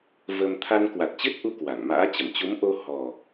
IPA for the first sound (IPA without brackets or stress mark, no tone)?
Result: v